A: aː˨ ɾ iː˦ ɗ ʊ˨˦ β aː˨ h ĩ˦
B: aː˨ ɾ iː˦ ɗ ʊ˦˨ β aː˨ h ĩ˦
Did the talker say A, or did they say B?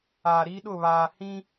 B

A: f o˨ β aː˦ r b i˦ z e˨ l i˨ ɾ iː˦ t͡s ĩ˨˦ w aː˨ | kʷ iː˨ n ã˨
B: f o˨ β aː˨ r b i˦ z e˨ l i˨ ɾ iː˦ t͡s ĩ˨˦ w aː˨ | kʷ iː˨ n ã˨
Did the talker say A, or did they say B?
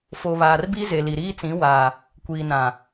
B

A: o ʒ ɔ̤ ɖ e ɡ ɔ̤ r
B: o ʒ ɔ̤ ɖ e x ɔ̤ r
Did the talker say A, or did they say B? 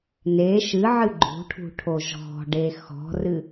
B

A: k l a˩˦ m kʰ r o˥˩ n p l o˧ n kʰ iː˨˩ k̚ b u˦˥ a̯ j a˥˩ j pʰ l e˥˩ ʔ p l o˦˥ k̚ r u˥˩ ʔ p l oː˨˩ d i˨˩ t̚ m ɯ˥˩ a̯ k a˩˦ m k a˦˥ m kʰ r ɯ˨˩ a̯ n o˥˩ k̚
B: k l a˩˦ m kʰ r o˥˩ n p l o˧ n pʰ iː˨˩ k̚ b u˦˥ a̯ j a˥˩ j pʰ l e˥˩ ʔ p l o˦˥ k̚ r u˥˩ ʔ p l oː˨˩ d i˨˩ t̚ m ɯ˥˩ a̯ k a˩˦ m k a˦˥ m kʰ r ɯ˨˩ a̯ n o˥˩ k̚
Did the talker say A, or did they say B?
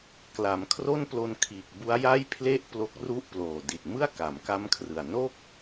A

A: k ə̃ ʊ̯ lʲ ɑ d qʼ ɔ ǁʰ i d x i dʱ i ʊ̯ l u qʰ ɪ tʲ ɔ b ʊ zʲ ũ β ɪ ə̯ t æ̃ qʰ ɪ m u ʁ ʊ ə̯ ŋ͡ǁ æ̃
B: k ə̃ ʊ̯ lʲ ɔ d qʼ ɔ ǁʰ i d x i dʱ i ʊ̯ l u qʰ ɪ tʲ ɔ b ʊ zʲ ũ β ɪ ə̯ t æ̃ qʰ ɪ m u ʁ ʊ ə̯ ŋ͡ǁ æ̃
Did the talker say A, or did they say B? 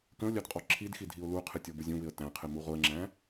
A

